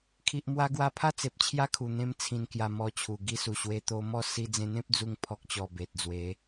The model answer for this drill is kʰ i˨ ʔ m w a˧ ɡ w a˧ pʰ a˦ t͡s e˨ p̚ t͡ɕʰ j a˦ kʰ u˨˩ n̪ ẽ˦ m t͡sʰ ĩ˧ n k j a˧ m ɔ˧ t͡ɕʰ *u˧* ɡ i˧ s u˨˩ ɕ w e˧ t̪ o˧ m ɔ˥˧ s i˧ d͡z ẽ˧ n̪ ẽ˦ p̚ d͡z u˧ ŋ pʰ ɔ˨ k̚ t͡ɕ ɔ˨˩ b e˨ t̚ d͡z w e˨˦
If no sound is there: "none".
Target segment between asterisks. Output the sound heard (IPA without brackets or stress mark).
u˨˩